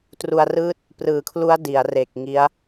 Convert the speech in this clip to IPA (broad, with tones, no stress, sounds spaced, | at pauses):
t r u˧ a̯ r ɯː˥˩ t̚ | p r ɯː˩˦ kʰ l u˦˥ a̯ d i˩˦ a̯ r e˨˩ k̚ ŋ i˦˥ a̯